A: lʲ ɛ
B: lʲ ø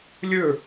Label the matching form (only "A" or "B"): B